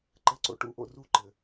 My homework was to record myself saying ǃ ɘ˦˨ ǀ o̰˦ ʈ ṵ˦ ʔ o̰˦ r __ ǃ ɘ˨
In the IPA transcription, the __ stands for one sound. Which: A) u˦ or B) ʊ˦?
A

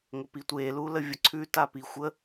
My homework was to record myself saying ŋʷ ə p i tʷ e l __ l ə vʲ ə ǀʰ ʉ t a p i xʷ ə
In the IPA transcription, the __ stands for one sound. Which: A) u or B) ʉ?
A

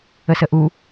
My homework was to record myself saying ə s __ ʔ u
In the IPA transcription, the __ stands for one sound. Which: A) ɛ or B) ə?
B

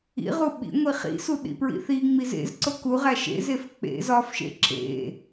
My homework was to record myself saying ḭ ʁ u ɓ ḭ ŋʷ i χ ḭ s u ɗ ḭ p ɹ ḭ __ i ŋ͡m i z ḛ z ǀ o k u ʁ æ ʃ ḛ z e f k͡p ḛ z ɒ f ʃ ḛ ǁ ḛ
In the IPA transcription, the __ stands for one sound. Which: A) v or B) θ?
B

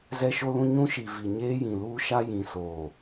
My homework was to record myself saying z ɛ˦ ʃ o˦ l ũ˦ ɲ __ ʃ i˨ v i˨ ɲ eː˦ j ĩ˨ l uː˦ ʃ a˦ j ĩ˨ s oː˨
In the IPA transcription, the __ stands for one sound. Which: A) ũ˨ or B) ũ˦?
B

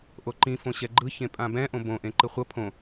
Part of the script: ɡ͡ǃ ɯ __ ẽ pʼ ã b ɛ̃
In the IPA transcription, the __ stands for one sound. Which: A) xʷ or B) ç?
B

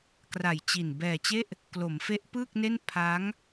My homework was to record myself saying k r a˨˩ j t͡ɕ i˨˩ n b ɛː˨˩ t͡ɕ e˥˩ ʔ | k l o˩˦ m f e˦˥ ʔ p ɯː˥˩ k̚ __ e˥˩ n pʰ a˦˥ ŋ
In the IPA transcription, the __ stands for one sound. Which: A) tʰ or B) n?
B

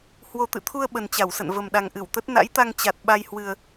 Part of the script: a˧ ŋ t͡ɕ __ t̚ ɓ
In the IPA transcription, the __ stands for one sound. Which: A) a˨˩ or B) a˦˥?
A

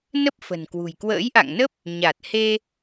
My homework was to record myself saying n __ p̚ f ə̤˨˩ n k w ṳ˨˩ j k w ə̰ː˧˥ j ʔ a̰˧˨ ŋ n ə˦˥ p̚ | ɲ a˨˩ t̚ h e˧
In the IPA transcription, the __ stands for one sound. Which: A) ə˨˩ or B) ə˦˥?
B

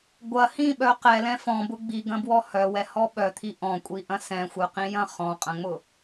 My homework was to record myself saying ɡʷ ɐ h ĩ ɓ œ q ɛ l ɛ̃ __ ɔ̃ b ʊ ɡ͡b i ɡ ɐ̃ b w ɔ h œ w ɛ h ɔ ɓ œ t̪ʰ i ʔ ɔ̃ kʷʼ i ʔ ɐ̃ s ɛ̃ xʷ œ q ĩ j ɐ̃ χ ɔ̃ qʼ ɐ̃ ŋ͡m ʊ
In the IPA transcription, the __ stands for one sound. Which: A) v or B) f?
B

